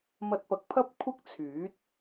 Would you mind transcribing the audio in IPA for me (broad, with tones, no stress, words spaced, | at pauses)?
mɐ˧t̚pɐ˨˥k̚pʰɐ˥p̚ kʷʰɐ˥k̚t͡sʰyː˨˥t̚